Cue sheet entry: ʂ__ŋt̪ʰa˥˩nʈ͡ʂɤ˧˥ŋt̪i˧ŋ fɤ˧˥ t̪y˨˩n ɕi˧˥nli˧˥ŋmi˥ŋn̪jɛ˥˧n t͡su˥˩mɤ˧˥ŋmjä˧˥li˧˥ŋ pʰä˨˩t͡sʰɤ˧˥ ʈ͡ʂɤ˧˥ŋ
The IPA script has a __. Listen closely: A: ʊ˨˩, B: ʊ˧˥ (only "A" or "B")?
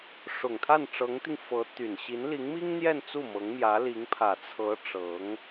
A